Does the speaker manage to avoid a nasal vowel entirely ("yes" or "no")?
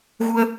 yes